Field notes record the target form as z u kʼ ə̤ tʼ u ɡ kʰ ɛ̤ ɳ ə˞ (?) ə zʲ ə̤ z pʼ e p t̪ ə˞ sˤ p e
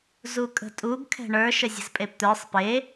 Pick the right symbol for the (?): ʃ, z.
ʃ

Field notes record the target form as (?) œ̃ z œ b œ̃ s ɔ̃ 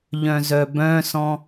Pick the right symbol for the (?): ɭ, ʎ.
ʎ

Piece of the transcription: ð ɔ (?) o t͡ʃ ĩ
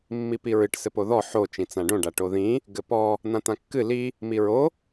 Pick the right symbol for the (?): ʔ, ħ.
ħ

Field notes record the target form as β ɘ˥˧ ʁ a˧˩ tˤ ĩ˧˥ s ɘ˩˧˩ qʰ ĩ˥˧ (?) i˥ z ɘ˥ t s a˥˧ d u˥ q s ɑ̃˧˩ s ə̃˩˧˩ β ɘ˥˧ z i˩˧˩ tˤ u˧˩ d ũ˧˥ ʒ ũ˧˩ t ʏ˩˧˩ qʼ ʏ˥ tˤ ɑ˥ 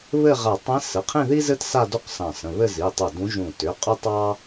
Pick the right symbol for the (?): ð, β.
ð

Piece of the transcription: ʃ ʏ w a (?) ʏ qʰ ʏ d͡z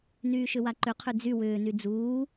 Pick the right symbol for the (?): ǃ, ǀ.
ǃ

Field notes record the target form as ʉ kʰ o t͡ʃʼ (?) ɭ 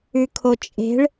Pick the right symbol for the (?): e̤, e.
e̤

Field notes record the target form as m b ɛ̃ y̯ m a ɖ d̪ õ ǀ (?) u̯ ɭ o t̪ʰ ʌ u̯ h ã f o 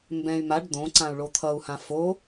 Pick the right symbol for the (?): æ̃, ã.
ã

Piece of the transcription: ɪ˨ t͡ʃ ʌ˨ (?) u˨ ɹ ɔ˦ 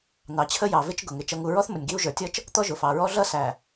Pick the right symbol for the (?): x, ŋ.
ŋ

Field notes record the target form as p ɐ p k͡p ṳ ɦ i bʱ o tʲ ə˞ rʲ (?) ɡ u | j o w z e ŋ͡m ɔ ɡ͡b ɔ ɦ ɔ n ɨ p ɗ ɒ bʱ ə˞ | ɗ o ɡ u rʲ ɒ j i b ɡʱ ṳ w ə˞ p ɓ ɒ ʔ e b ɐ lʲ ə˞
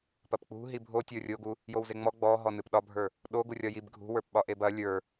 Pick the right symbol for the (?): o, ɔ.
o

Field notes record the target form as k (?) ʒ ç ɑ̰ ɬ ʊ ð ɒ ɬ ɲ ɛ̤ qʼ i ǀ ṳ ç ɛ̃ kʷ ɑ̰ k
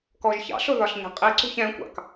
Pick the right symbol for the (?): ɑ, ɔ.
ɔ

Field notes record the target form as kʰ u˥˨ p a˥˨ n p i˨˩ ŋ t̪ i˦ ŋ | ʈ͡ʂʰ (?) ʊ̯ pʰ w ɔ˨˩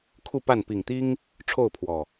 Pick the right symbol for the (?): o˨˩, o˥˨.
o˥˨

